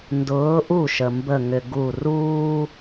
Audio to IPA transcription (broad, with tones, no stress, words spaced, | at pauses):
ndʊː˨˥ʔu˥˩ʃə˩ mbə˧˩ŋʏ˩ ɡu˧˩ ruː˥